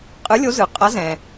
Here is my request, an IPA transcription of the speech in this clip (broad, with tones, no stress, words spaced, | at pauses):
qʼɯ˨˥lʲo˨˥ zɯ˩qʼʌ˨˥zɛ̃˩